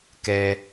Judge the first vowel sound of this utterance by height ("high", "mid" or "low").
mid